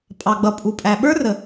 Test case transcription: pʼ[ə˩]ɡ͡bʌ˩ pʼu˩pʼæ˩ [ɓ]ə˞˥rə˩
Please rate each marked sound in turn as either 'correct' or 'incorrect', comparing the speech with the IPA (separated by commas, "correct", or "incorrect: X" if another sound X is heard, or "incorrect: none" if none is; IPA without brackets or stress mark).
incorrect: ɑ˩, correct